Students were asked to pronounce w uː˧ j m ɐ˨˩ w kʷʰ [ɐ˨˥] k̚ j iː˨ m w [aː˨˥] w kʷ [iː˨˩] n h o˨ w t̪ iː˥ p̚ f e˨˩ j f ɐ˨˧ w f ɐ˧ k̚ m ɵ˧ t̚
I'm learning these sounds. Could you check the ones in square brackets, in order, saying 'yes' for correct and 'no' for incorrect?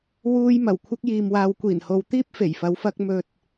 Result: no, no, yes

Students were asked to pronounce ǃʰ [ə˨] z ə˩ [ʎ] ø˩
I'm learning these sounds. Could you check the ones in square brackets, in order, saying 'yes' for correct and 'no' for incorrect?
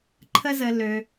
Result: yes, no

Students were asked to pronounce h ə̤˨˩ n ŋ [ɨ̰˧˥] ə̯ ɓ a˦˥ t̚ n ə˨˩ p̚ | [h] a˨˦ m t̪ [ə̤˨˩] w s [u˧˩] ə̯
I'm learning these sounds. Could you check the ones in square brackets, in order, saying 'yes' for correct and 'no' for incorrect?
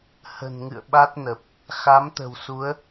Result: no, no, yes, no

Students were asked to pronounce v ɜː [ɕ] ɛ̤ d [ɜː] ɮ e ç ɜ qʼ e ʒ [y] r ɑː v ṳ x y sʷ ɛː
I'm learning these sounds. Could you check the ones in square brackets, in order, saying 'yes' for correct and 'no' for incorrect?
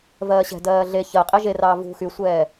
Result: yes, yes, no

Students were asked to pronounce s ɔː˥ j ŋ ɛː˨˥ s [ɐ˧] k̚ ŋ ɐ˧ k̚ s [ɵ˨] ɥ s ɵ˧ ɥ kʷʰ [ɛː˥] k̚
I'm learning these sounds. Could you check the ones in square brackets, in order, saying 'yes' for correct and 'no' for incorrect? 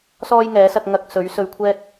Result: yes, no, yes

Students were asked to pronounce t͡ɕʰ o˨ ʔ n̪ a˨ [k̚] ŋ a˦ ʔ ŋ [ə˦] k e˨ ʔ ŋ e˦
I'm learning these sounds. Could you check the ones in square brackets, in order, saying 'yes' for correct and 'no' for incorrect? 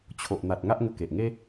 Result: no, no

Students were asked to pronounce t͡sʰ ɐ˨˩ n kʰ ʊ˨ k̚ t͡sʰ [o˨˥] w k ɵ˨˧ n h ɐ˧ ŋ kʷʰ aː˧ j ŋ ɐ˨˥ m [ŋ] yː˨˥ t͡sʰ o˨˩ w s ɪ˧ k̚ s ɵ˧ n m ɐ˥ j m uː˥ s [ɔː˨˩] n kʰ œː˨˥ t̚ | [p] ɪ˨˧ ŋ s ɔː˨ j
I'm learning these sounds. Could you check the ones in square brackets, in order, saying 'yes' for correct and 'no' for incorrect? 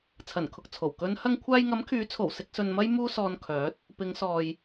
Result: no, no, no, yes

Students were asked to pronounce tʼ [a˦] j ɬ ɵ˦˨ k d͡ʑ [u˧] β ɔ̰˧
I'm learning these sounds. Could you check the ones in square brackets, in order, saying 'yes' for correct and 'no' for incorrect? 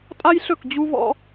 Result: yes, yes

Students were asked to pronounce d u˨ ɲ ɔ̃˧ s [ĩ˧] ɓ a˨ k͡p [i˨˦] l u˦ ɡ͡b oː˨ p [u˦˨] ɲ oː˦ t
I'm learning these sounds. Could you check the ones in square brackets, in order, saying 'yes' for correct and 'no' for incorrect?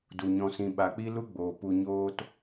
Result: yes, no, no

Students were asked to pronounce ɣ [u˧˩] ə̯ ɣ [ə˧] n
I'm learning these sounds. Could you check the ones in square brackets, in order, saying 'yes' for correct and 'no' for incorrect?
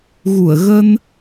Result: yes, yes

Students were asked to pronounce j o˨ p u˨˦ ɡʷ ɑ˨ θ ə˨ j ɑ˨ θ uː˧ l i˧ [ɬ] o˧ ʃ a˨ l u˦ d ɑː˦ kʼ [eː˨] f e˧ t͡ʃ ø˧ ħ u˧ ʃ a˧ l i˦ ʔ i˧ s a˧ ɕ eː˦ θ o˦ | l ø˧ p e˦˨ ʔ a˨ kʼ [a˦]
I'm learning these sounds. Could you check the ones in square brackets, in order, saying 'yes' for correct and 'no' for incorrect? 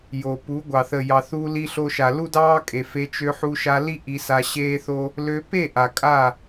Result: yes, no, no

